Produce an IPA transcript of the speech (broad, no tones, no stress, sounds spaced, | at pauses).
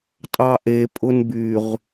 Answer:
tʼ ɑ ʔ e pʼ ʊ n b y ʁ